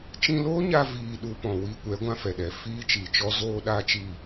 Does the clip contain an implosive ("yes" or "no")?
yes